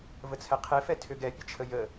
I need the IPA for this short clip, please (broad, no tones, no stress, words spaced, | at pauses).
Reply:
vət͡sʰɛqʰefɛ tʰʏɡɛpʲət͡ʃʰə jə